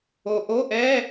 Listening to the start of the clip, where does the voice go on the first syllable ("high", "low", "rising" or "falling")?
low